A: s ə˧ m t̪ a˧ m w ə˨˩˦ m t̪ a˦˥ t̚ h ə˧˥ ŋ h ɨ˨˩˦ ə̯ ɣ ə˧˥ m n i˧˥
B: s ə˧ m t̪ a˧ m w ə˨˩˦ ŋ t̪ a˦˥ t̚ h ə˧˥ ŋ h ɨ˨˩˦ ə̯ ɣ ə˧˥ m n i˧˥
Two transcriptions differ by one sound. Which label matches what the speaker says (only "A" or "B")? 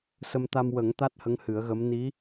B